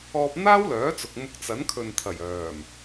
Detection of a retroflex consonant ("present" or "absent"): absent